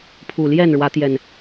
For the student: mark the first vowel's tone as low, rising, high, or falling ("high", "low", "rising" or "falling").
low